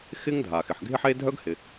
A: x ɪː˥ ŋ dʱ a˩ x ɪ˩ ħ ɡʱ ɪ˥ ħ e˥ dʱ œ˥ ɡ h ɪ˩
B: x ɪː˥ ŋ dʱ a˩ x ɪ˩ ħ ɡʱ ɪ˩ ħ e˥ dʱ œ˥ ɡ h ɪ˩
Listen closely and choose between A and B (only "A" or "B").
A